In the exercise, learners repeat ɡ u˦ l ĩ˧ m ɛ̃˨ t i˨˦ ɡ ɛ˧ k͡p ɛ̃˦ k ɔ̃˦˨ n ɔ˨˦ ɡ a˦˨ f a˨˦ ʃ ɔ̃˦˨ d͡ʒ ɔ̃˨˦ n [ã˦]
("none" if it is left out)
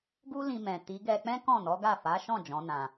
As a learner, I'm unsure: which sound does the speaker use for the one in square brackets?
ã˧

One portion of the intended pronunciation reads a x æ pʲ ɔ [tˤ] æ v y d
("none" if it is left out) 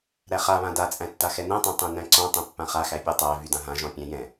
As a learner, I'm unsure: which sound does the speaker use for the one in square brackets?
tˤ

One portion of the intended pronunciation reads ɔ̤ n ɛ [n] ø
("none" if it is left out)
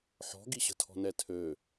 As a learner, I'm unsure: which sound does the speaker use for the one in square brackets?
tʰ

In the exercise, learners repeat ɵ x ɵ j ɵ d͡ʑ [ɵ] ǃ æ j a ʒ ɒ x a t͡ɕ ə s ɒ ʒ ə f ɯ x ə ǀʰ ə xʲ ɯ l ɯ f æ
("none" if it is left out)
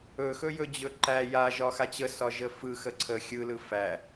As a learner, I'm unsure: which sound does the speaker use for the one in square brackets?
ɵ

